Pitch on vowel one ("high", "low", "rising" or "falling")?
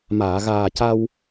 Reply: low